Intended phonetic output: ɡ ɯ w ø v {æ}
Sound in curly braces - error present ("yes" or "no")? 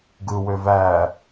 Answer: no